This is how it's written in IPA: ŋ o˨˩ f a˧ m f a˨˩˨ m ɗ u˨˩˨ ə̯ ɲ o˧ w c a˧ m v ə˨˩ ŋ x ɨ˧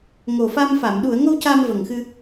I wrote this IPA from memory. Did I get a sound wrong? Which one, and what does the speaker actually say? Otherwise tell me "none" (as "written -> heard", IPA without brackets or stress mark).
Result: ɲ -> ŋ